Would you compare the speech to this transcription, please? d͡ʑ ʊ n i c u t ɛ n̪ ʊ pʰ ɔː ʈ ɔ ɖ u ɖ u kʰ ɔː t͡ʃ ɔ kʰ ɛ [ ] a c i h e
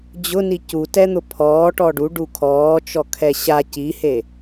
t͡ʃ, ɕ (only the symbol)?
ɕ